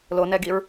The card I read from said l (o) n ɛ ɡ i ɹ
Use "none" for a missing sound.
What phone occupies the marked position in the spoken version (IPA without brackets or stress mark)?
o